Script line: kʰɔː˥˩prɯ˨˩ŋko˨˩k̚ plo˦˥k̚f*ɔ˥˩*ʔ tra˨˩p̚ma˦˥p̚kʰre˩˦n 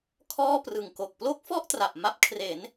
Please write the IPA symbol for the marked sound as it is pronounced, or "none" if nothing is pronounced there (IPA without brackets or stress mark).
ɔ˥˩